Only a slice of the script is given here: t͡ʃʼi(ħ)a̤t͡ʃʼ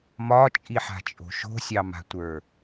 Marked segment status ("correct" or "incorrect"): correct